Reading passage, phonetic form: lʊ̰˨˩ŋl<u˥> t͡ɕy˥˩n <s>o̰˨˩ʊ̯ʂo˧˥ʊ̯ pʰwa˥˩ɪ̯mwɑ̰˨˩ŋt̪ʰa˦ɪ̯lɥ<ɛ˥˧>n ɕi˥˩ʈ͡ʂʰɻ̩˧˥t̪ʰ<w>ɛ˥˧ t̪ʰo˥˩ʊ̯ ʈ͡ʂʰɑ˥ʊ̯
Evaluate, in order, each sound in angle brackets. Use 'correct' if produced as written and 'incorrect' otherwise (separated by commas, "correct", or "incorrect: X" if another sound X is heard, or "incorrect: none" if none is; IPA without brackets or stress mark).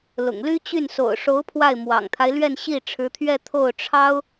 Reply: incorrect: y˥, correct, correct, incorrect: ɥ